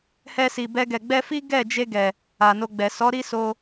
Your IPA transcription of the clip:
h ɛ˧ s i˨ b ɛ˧ ɡ ɛ˨ ɡ͡b ɛ˧ f i˦ ɡ ɛ˦˨ d͡ʒ e˧ ɡ ɛ˨ | a˨ n o˧ ɡ͡b ɛ˨ s ɔ˨˦ ɾ i˦ s o˧

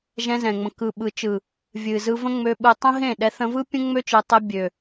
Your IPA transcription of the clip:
ʒ ɛ̃˧ z ɛ̃˨ ŋ͡m ə̃˨ k ɯ˨ ɓ ɯ˨ t͡ʃ ɯ˨ | vʲ ɨ˨ z ɯ˧ v ə̃˦ ŋ͡m ø˧ ɓ ɯ˨ tˤ ə̃˦ ɦ ẽ˦˨ ɗ ɛ˨˦ θ ə̃˧ v ɯ˦ pʲ ə̃˦ ŋ͡m ø˦ t͡ʃ ɯ˨ tˤ ɛ˧ bʲ ø˨

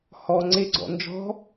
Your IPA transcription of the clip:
h ɔ ŋ͡ǀ e ɡ͡ǀ ɔ̰ n d͡ʒ ɔ̤

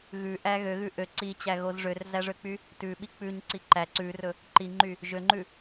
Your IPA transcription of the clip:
ɣ ʉ ʔ æ ɣ ø ɣ ʉ ʔ ø ǀ i t͡ɕ æ ɣ o z ʐ ø r z æ ʐ ø k͡p y | t ʉ ɓ i k͡p ʉ ɲ ǀ i ǃ æ ǀ ʉ r ɵ | ǃ i ŋ͡ǃ y | ʒ ø ŋ͡ǃ ʉ

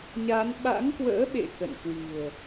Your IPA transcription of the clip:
ɲ a˨˦ n ɓ a̰˧˥ ŋ k w ə̰ː˧˥ ɓ ḛ˧˨ k ə̰˧˨ n k w i̤˨˩ ə̯

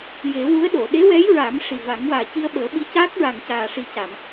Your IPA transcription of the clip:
j e˨˩˦ w u˧˥ ə̯ ɗ o˨˩˨ ɗ e˧˥ w ɛ˧˥ j ɹ a˨˩˦ m ʂ i˨˩ v a˨˩˦ ŋ w aː˨˩ c i˧ ə̯ ɓ əː˨˩˦ ɓ i˧˥ c aː˦˥ k̚ ɹ a˨˩ ŋ c aː˨˩ ʂ i˨˩ c a˨˩˨ m

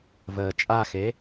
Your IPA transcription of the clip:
v əː t͡ʃʼ a x e

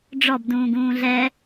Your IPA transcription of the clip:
ɖ͡ʐ ɔ b d ũː ɡ ũː ɮ ɛ

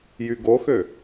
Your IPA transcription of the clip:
j y ɡ o x ø

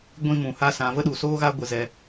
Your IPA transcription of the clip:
ɡʷ ĩ˦ m ũ˧ h a˦ s ã˧ v ə˦ ɗ u˧ s oː˦ ɣ a˦ ɡʷ ɨ˧ z ɛ˧

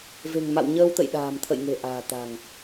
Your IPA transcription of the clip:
v e̤˨˩ ŋ m a̰˧˨ w ɲ əː˧ w t̪ ə̰˧˨ j ɗ a̤ː˨˩ m t̪ʰ ə̰˧˨ j ŋ e̤˨˩ ʔ a̤ː˨˩ t̪ a̤˨˩ ŋ

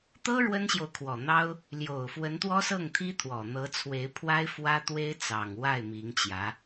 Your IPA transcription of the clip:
t̪ ɤ˥ ɻ w ə˥ n ɕ j o˨ ʊ̯ kʰ w ɔ˨˩ n̪ ɑ˥ ʊ̯ | l j o˨˩ ʊ̯ f w ə˧˥ n t̪ w ɔ˥ s ɤ˥˩ ŋ t̪ʰ i˥ t̪ʰ w ɔ˨˩ n̪ ɤ˧˥ t͡sʰ w e˧˥ ɪ̯ pʰ w a˥ ɪ̯ f w ä˥ t̪ w e˥ ɪ̯ t͡s ɑ˨˩ ŋ w a˥˩ ɪ̯ m i˧˥ ŋ t͡ɕ j ä˧˥

